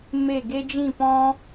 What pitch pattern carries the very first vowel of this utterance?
falling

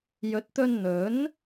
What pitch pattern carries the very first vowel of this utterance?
rising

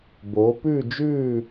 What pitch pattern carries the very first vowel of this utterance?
rising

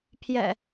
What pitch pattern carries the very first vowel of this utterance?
low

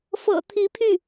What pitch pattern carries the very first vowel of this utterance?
low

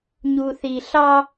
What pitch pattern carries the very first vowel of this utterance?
low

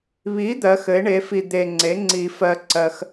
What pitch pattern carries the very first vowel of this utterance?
rising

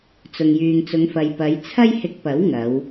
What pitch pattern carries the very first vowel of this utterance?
low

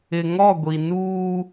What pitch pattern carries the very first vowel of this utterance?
low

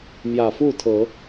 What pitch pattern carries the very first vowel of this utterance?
low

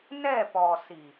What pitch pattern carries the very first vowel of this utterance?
falling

